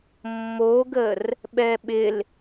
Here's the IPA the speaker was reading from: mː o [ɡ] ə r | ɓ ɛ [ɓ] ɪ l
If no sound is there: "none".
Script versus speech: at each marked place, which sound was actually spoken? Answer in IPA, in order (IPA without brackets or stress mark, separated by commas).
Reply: ɡ, ɓ